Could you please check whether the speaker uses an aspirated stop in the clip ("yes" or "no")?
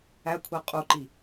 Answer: yes